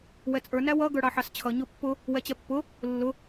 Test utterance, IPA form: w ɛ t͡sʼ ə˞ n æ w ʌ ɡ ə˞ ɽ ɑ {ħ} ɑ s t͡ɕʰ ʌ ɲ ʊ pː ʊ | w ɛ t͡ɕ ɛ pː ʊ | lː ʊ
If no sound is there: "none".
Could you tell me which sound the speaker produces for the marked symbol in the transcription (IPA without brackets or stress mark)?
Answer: ħ